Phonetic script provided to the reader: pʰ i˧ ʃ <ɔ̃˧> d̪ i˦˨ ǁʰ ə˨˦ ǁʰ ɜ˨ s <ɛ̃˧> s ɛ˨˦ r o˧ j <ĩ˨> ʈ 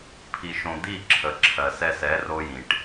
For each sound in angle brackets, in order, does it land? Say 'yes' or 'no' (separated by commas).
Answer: no, no, yes